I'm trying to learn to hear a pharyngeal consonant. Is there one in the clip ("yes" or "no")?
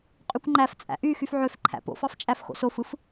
yes